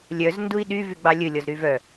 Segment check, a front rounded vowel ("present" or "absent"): present